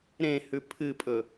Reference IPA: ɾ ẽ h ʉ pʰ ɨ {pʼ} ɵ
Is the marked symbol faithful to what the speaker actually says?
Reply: yes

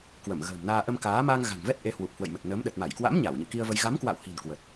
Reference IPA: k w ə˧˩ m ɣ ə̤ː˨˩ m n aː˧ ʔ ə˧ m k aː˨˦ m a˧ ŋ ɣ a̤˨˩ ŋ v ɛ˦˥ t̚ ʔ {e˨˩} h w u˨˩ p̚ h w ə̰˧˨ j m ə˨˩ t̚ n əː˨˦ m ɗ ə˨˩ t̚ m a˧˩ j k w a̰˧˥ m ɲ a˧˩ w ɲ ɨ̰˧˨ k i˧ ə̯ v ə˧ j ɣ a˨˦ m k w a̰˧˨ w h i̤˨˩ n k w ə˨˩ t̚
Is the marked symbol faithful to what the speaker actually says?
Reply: no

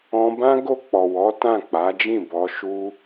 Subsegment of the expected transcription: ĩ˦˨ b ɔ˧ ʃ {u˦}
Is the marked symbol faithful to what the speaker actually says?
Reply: yes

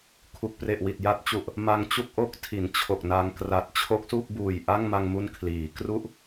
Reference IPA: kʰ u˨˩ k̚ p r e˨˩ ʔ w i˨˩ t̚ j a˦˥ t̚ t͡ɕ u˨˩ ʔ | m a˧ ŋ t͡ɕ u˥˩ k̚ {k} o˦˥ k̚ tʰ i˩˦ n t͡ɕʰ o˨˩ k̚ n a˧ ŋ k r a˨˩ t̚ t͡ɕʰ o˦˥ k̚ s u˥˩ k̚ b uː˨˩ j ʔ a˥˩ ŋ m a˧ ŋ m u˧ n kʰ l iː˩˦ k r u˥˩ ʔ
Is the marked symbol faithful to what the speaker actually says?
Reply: no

